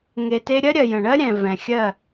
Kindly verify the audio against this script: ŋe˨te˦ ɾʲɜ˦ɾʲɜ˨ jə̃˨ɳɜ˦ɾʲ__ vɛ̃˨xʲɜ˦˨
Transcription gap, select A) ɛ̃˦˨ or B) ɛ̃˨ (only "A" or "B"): B